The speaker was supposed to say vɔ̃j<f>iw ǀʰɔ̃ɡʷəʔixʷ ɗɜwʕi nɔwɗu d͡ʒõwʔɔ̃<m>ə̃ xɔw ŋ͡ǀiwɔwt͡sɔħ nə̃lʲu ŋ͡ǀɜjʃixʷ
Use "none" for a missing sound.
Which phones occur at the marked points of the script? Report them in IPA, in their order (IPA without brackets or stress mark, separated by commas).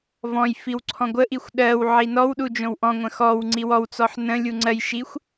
f, ŋʷ